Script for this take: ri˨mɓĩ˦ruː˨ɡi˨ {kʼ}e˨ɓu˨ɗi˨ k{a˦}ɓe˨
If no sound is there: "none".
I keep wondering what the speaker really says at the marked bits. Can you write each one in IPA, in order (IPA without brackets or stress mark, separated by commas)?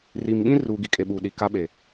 kʼ, a˦